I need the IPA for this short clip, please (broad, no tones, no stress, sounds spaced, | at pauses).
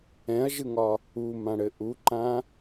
ɛ̃ ɐ̯ ʒ ɯ ŋ ɒ | u m ã ɽ ɘ ʔ u ǃ ã